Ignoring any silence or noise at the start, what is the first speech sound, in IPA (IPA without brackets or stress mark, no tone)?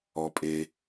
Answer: ɔ